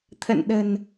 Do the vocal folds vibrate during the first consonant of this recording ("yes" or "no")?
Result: no